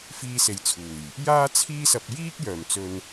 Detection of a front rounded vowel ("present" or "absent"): present